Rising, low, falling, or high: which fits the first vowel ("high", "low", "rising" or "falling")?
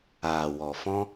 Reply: low